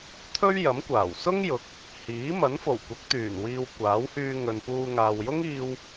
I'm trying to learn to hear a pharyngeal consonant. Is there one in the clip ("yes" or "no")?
no